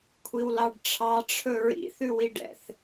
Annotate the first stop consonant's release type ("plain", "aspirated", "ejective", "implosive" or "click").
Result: aspirated